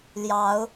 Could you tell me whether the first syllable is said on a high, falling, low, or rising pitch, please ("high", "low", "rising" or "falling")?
rising